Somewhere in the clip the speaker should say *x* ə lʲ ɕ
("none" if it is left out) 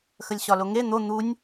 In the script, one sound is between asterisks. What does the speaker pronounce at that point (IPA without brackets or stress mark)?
x